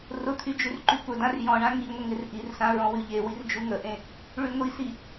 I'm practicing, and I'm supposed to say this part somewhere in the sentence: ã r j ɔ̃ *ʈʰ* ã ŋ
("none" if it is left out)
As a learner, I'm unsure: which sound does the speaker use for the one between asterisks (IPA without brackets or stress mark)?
ɳ